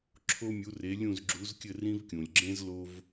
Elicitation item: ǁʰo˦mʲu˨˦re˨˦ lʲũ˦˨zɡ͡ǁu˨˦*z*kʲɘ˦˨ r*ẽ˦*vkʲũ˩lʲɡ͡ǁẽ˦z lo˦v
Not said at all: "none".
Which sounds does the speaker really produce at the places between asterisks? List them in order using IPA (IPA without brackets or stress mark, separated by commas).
z, ĩ˦